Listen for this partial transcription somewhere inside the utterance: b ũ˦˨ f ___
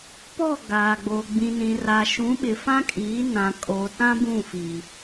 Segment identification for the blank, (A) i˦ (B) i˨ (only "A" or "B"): B